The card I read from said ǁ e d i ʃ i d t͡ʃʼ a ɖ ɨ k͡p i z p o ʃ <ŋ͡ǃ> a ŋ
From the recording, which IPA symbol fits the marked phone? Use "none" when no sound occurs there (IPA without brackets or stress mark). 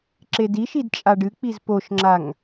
ŋ͡ǁ